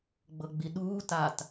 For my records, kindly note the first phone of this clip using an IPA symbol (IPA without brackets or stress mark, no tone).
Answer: ɡ͡b